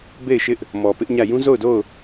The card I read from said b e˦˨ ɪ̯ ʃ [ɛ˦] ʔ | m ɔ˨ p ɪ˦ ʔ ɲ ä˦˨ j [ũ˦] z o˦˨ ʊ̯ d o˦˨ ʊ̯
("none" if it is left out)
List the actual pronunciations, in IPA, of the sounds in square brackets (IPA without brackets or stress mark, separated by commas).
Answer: ɪ˦, ũ˦